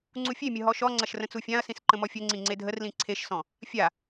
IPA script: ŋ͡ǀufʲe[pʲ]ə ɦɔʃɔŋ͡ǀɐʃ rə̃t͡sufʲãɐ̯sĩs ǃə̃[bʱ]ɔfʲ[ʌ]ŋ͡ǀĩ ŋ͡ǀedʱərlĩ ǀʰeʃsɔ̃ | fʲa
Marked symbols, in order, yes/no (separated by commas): no, no, no